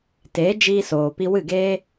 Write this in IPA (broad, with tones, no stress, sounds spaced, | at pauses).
t eː˨˦ d͡ʒ iː˧ s oː˨ p i˧ w ɨ˦˨ ɡ eː˦